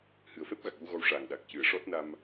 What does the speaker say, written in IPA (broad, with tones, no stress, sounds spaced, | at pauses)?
h ɨ˨˩ ə̯ f ɛ˦˥ p̚ ɣ a˨˩ k̚ j u˧ ɣ ɔ˧ w ʂ aː˨˩ ŋ ɗ a˨˩ k̚ c ɨ˨˩˦ ə̯ ʂ ɔ˦˥ t̚ n a˧ m